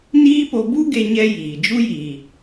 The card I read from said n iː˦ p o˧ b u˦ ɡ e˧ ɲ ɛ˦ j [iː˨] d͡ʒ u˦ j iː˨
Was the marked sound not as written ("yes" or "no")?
no